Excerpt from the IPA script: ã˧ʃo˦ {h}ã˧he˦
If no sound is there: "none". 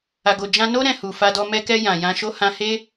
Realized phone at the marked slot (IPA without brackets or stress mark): h